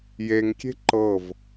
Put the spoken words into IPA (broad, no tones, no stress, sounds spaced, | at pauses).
j e ŋ kʲ e̤ ǃ ɤ v